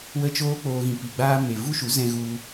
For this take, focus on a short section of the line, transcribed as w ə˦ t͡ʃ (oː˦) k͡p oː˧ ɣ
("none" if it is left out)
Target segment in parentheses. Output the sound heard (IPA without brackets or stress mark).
oː˦